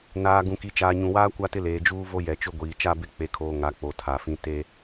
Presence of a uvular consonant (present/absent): absent